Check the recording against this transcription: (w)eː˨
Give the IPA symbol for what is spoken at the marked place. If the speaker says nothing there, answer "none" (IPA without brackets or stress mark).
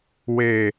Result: w